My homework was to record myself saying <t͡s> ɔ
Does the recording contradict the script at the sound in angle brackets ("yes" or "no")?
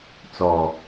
no